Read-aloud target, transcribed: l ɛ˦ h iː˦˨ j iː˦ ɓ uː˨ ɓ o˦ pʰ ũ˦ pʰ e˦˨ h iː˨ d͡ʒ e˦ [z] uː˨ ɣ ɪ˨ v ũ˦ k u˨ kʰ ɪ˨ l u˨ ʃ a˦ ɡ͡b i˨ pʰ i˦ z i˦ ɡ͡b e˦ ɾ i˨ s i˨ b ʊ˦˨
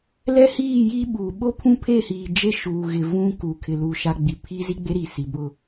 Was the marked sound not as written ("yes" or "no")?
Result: yes